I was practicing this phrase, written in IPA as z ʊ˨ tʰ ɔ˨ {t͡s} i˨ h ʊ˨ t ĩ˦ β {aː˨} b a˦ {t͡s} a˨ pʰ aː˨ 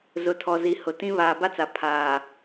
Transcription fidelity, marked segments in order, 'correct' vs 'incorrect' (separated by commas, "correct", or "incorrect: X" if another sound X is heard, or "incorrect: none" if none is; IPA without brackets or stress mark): incorrect: z, correct, correct